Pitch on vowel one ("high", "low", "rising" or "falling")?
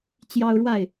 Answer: high